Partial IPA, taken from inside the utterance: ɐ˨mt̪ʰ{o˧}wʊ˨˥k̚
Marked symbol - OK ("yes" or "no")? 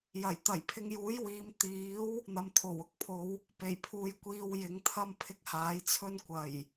no